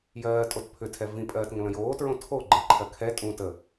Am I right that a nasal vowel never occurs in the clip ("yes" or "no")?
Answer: no